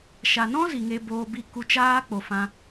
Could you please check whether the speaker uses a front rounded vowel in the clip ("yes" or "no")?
no